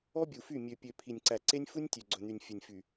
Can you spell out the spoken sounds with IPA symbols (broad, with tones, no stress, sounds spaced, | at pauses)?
ɔ˦ bʲ u˨ f y˦˨ mʲ ø˨ pʲ ø˨ pʰ i˨ nʲ ǀ æ˨ ǀ e˦ nʲ f u˦ nʲ tʲ ø˨ ɡ͡ǀ ɵ˨ n̪ y˨ nʲ fʲ œ˨ nʲ f y˨